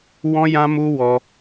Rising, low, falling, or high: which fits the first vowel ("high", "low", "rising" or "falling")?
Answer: high